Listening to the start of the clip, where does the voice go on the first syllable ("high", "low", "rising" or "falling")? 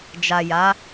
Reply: low